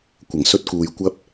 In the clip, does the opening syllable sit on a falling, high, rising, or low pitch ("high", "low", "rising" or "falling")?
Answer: low